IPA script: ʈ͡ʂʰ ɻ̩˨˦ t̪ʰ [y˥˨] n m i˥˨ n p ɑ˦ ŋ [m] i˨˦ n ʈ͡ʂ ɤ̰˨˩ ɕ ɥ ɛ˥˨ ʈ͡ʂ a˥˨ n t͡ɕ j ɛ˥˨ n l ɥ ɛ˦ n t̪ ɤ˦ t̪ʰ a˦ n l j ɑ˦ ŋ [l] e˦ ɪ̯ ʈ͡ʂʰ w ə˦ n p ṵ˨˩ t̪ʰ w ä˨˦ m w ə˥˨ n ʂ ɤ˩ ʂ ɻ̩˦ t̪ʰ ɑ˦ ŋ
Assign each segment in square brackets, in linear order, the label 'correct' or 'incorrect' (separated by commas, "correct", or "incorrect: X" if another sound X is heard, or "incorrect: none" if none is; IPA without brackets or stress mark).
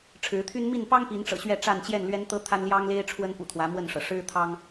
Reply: incorrect: y˦, incorrect: p, correct